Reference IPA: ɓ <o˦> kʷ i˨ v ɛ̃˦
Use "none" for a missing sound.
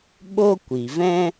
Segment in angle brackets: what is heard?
o˦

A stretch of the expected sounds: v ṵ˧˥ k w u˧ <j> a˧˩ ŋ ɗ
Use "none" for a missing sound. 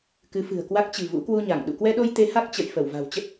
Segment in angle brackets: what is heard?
ɲ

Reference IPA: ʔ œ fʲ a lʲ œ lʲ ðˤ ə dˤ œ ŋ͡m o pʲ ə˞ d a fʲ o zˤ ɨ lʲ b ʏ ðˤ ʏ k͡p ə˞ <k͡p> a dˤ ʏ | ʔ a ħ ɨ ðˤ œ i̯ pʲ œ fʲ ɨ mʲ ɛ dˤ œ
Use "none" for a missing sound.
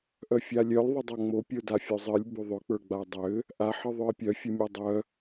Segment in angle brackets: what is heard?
ɡ͡b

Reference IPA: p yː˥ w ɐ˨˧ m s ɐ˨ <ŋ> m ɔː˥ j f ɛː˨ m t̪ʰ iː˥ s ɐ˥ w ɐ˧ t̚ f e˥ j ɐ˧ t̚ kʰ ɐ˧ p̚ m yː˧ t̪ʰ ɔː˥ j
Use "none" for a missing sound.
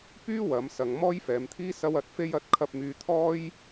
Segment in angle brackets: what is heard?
ŋ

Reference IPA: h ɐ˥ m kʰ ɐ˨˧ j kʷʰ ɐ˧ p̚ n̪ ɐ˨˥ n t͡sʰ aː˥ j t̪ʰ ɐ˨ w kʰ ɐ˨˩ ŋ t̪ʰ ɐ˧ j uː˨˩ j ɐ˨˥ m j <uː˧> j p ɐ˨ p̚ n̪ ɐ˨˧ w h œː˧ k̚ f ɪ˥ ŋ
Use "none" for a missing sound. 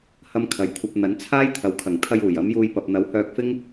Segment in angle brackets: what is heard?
uː˧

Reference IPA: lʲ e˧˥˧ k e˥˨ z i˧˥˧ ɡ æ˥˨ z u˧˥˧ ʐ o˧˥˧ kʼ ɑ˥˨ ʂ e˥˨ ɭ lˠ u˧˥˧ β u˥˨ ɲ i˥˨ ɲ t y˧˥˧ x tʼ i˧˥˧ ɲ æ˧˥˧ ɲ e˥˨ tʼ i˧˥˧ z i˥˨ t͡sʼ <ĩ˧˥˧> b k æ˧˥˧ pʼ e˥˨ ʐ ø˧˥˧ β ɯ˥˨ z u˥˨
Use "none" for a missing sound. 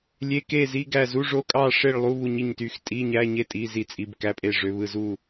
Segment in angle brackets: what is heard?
i˧˥˧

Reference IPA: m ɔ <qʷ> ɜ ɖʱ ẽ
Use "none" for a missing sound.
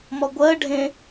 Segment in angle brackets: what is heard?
ɡʷ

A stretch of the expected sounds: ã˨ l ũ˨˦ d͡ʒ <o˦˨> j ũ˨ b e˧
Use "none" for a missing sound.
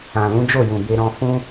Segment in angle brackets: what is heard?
o˦˨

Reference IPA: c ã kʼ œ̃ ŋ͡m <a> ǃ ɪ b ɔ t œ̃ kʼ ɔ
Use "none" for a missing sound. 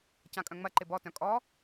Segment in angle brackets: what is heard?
ɐ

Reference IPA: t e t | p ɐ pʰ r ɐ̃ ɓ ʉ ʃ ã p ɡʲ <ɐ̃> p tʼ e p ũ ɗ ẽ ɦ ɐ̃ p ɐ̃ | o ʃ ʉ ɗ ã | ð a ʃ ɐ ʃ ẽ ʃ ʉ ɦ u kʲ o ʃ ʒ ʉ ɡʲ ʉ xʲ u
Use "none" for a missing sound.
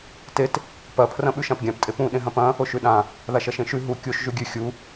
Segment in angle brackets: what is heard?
ã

